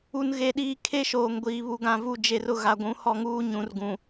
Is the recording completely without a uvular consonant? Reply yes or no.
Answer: yes